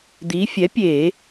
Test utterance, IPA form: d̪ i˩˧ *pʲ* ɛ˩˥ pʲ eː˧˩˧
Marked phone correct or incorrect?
incorrect